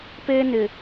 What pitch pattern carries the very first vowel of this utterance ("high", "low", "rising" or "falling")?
high